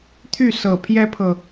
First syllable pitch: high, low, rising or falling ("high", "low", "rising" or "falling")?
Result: falling